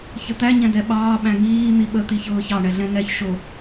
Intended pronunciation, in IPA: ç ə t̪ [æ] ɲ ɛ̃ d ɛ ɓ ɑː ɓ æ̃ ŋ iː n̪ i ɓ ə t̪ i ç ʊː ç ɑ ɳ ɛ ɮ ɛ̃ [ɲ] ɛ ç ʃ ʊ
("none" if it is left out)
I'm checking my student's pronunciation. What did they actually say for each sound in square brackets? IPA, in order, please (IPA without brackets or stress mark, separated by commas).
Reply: æ, ŋ